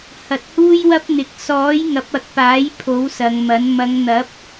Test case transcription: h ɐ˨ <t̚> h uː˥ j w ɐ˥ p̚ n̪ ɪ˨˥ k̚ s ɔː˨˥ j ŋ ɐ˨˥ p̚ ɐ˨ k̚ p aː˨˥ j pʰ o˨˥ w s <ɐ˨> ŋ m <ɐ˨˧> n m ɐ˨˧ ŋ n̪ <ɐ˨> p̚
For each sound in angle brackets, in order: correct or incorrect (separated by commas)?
correct, correct, incorrect, incorrect